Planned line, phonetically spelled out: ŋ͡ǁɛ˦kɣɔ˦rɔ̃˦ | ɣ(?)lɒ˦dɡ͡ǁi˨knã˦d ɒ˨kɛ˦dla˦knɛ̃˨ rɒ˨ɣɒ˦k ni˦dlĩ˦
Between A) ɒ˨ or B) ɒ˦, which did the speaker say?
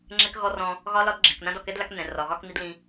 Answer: B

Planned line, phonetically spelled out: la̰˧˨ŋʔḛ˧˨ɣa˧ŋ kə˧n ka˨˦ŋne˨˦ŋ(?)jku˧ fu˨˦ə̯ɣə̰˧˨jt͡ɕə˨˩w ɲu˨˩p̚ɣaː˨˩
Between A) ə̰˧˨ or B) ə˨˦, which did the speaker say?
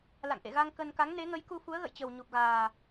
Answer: B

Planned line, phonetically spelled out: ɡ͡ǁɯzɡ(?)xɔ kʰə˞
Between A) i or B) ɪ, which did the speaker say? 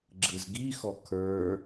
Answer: A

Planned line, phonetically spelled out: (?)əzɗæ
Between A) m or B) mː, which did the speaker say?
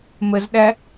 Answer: A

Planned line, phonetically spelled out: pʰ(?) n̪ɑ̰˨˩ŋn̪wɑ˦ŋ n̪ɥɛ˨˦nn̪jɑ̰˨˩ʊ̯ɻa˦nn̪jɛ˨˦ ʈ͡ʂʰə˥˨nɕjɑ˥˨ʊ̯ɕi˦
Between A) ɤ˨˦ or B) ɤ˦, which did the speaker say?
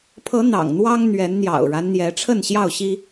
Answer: A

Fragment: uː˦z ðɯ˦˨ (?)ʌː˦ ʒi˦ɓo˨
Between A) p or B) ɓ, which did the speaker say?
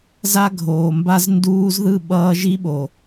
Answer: B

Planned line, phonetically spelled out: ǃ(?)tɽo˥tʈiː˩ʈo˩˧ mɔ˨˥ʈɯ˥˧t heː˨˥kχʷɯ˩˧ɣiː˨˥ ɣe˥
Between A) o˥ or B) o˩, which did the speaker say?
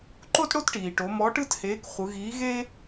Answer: A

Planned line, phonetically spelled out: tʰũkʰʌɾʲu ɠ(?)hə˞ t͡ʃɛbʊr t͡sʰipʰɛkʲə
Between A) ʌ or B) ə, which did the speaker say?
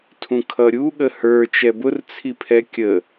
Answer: B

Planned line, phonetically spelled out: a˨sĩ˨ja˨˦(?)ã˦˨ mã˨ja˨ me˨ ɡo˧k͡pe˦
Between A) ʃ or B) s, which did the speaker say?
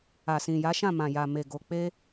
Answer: A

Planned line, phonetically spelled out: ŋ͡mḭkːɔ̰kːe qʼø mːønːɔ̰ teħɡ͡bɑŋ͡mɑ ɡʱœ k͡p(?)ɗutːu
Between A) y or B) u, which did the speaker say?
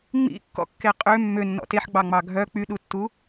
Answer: A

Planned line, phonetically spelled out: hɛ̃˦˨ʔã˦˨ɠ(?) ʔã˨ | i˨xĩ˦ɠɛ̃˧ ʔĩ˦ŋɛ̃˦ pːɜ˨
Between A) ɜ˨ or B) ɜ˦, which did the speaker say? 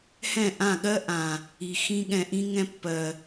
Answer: B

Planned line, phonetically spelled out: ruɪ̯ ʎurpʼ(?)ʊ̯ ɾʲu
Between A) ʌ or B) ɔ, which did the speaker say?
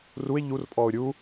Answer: B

